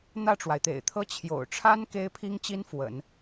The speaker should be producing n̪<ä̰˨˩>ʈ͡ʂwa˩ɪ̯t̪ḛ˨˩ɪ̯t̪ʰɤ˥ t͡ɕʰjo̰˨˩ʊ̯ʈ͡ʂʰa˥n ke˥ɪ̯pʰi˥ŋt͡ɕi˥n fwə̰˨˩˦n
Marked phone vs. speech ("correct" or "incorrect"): incorrect